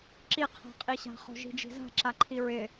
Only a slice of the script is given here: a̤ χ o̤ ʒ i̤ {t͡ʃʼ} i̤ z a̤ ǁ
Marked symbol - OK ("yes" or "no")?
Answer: no